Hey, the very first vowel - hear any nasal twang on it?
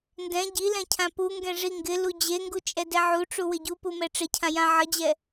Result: yes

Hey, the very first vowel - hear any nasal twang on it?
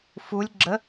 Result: no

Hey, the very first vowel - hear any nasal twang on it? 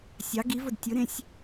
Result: no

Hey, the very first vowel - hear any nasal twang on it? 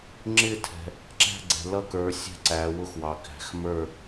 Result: no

